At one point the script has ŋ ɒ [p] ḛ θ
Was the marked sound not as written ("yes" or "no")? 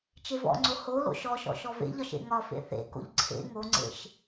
yes